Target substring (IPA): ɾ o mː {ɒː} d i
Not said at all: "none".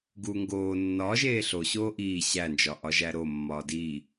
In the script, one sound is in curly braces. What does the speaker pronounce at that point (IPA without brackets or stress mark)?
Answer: ɒː